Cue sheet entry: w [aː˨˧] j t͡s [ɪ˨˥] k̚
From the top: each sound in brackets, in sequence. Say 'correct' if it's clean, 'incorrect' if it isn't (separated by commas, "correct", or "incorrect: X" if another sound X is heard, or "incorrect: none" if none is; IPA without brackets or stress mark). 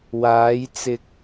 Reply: correct, incorrect: ɪ˧